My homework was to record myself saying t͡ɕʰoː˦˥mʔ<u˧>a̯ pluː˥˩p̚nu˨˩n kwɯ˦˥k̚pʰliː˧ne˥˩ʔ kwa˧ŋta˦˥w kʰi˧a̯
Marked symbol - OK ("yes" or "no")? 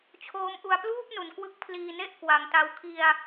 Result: yes